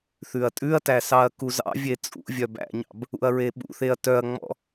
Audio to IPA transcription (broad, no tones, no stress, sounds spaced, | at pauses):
θ ʉ ɐ̯ tʼ ʉ ɐ̯ t æ s ɑ ɐ̯ k u z ɑ̰ vʲ e t͡sʼ ṵ vʲ œ b æ̰ ɲ ɑ̰ b | ṵ ɐ̯ ɹ e ɓ ṵ θ e ɐ̯ t œ ɐ̯ ŋ͡m ɔ̰